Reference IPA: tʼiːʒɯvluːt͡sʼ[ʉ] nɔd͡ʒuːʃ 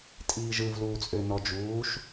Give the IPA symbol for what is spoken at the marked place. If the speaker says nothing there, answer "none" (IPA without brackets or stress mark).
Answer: ø